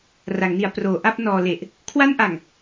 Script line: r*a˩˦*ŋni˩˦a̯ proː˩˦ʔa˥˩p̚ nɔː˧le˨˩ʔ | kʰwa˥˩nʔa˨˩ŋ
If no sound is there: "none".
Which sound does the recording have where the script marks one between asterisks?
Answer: a˩˦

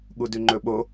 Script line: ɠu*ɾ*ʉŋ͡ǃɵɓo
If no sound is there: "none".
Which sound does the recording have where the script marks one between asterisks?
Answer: d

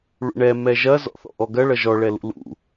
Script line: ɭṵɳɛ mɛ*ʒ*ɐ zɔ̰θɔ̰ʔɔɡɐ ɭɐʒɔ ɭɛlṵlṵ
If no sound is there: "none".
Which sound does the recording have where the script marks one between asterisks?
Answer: ʒ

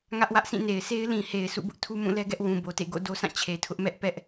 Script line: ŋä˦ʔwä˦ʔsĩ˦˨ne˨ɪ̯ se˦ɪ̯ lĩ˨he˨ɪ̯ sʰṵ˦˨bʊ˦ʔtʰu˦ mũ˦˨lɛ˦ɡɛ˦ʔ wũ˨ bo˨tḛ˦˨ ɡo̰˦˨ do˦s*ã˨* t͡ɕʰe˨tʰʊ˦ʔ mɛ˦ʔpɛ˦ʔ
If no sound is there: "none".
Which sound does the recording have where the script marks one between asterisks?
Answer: ã˦˨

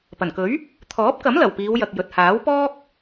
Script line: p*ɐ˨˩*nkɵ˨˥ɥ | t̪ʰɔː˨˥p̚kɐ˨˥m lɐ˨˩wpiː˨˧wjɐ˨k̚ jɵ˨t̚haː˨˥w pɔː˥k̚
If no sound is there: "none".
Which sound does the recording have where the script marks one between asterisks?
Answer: ɐ˨˩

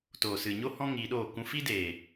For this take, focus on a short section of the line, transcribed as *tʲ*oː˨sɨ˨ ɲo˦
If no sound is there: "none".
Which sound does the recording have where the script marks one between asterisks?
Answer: t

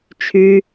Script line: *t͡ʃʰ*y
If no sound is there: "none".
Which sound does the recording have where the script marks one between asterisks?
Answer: t͡ʃʰ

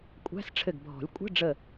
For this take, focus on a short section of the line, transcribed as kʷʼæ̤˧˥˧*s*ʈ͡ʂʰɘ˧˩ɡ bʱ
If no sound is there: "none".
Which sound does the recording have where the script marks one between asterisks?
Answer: s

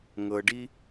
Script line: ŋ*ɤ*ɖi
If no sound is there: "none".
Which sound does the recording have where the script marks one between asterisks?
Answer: ɤ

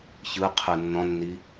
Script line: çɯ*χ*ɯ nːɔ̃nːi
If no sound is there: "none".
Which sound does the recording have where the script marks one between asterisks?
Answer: qʰ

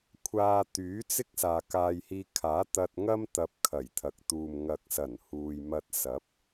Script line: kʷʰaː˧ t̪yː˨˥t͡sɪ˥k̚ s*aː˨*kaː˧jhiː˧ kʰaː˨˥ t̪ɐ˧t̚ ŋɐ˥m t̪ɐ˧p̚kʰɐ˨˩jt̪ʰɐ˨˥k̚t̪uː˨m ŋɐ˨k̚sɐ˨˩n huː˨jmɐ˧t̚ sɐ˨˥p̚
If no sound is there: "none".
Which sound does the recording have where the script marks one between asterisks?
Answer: aː˨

